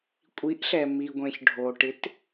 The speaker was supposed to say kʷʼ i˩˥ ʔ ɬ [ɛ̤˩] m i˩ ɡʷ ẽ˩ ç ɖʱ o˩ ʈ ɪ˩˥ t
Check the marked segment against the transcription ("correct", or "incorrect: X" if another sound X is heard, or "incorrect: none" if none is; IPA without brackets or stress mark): incorrect: ɛ˩